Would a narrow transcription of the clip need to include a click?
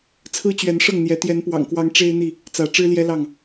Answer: no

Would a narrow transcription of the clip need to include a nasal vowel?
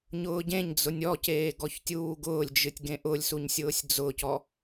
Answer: yes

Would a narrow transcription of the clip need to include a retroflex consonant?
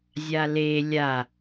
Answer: no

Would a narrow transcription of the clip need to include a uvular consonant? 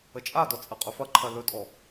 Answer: yes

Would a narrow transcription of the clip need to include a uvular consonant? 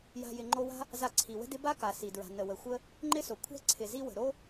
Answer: no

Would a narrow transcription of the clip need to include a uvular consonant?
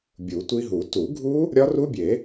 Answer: no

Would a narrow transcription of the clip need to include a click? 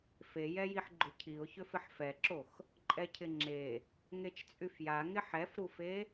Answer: yes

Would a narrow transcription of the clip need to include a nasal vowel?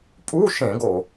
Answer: yes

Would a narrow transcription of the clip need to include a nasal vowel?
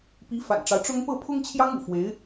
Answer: no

